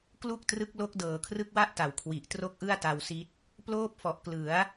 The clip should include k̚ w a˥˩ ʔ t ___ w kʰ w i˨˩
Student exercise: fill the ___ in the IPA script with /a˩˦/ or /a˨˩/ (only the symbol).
a˩˦